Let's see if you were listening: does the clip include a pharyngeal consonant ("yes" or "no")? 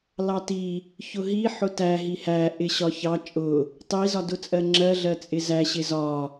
yes